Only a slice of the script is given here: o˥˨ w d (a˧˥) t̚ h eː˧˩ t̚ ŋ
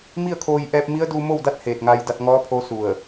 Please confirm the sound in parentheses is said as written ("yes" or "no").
yes